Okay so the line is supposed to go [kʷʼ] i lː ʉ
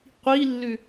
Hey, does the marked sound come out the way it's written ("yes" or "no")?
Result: no